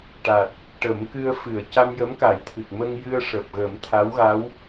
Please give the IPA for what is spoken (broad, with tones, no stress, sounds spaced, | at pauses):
ʈ a˨˩ t̚ | ʈ ə˨˩˦ m k ɨ˧ ə̯ f ɨ˨˩˨ ə̯ c a˧ m j ə˧˥ m k a˨˩˦ j t̪ʰ ɨ˨˩ k̚ m ə˧ ŋ j ɨ˧ ə̯ ʂ əː˨˩ p̚ ɣ ə˨˩˦ m t̪ʰ a˧˥ w ɣ a˧˥ w